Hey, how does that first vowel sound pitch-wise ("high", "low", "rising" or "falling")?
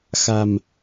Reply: low